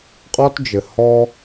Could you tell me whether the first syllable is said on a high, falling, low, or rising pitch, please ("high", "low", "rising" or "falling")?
high